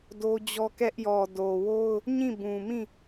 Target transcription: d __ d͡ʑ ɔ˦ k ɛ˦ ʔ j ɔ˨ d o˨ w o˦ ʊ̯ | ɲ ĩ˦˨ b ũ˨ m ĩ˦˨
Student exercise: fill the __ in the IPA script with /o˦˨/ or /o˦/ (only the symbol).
o˦